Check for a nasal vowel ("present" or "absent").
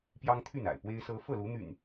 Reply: absent